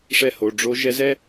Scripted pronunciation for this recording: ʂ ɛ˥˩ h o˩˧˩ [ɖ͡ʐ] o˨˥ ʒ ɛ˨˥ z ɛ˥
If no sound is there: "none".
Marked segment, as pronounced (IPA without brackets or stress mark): ɖ͡ʐ